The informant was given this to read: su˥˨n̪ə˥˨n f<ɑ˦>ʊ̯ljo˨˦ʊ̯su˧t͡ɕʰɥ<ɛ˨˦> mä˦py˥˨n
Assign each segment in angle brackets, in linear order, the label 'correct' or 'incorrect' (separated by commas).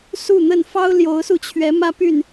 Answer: correct, correct